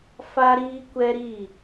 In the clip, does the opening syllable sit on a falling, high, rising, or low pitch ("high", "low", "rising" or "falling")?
high